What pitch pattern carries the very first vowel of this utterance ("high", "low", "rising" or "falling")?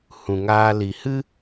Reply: low